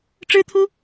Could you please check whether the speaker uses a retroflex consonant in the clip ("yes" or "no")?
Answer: yes